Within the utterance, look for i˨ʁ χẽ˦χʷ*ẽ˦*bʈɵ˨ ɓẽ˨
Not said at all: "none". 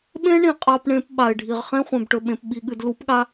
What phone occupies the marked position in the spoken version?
ẽ˨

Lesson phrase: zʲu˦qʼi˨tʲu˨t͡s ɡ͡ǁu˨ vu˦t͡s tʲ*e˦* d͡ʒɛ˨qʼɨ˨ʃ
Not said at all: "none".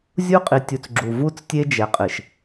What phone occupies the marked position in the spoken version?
e˦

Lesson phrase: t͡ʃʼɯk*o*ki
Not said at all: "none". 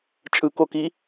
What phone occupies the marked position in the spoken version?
o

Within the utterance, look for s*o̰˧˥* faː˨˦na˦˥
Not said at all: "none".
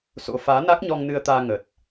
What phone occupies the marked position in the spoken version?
o̰˧˥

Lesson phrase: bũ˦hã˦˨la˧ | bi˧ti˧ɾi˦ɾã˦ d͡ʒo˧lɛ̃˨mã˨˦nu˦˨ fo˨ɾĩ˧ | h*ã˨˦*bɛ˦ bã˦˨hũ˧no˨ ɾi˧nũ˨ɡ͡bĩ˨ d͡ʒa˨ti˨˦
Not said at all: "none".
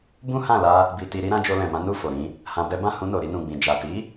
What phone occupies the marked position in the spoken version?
ã˧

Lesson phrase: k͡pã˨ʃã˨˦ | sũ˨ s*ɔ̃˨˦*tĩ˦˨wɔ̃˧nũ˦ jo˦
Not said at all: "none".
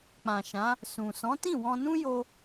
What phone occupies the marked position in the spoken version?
ɔ̃˨˦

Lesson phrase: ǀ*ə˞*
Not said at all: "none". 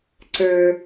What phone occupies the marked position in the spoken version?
ə˞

